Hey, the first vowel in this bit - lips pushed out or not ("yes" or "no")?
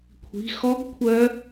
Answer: no